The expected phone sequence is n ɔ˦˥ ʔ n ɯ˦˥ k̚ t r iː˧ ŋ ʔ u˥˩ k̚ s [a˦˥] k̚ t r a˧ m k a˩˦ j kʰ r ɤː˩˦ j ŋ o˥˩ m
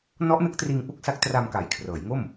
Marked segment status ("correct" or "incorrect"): correct